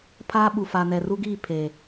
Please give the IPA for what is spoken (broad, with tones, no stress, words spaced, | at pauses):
pʰaː˦ ɓu˨fa˨nɛ˨ ru˦ɡiː˦˨ pʰeː˨